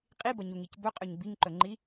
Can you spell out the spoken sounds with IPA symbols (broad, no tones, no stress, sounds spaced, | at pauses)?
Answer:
qʼ i b ɐ ɲ u ŋ i c b ɵ qʼ ɵ ɲ b i ŋ ǃ ɵ ŋ͡ǃ i